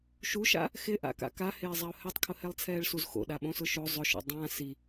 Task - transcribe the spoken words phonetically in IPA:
ʃ u ʃ a̰ | x ɪ ʔ a̰ k a̰ k a h ɪː zˤ a ʊ̯ h ɛ tˤ kʰ ʊ h ɛ lˠ t͡sʰ ɛː ɭ s u z x o̰ ɗ a ɓ õ s ʊ ʃ o zˤ ʊ ʃ o̰ dˤ ã s i

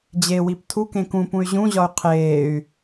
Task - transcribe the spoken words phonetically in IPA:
d͡ʑ e w i p tʰ u k ẽ k ũ p ũ y̯ ʑ ũ ʑ ɒ y̯ qʰ eː y̯

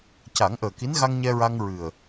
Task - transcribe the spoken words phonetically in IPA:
c a˨˩˦ ŋ ʔ əː˨˩ k i˧˥ n ɣ a˧ ŋ ɲ ɛ˧ ɹ a˧ ŋ ɹ ɨ˨˩ ə̯

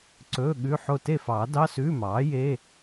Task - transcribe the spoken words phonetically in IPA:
ǀ ɵː˧˥˧ ɠ ʉ˧˥˧ ħ o˥˨ t e˥˨ f ɑː˨˩˦ d ɑ˧˥˧ s ʉː˧˥˧ m ɑː˩˥ j e˧˥˧

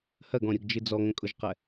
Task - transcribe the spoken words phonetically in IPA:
h ɜ ɡ ɔ̃ ɾʲ ʊ ɡ d͡ʒ ɨ d͡z ɔ ŋ ə̃ kʼ ʊ ʒ q ɛ

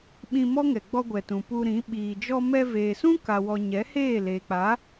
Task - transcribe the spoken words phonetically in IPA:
ɓ ĩ˧ m ɔ˦ ŋ ɛ˨ ɡ͡b ɔ˧ ɡʷ ɛ˨ t ũ˨ p u˧ ɾ ĩ˨˦ ɓ iː˨ d͡ʒ ɔ˧ m ɛ˧ v eː˨ s ũ˦ k a˨ w ɔ˨ ɲ ɛ˨˦ h eː˦˨ l eː˨ k͡p a˨˦

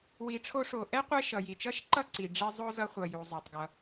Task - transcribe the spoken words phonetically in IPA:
w i˨ ʈ͡ʂʰ o˦ ʂ o˨ ʔ ɛ˥ qʷ ɛ˦ ʃ ʌ˩ j i˩ t͡ʃ ʌ˦ ʃ ǃ ʌ˦ ǀ i˩ ɖ͡ʐ i˦ zˤ o˥ z ʌ˦ χʷ ʌ˨ j u˩ zˤ o˩ tˤ ɡ ʌ˩

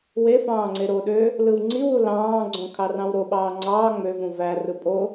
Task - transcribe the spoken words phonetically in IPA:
w e f ɑ̃ː ŋ͡ǀ e ɾ o ɗ ø | l ɯ w ŋ͡ǀ i w u l ɑ̃ː ɡ͡ǀ õ kʰ ɑ r ɑ̃ w ɾ o ɓ ɑː ŋ͡ǀ ɑː ŋ͡m ø v ũ v æ r ɯ pʼ o

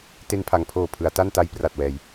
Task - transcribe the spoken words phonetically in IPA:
t e˧ n pʰ a˩˦ ŋ pʰ oː˨˩ pʰ ɯ˩˦ a̯ t a˥˩ n t a˦˥ j p r a˨˩ t̚ w ɛː˨˩ j

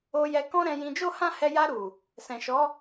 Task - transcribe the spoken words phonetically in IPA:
o˧ j ɛ˧ k ɔ̃˦ ɾ ɛ̃˧ j ĩ˧ d͡ʒ o˦ h ã˦ h ɛ˧ j a˧ ɾ u˨ | s ɛ̃˨ ʃ ɔ˨˦

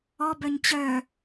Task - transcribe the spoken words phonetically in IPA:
ɔ b œ ɲ t͡ɕ œ

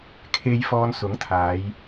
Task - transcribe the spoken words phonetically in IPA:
kʰ e˧ j f ɔː˧ n s ʊ˨˥ ŋ t̪ʰ aː˨˧ j

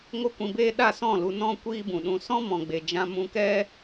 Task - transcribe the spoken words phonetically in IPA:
ŋ o˦ kʷ ĩ˧ b eː˦ ɗ a˦˨ s ɔ̃˦˨ l u˧ n ɔ̃˦ kʷ iː˦ b ũ˨ ɗ ũ˧ s ɔ̃˦ m ɔ̃˨ ɡ͡b e˨ d͡ʒ ã˧ m ũ˧ k ɛ˦

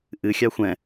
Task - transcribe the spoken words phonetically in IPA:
ʔ ɨ xʲ ɑ xʷ ɛ̃

